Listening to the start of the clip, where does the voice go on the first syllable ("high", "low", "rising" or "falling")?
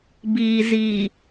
low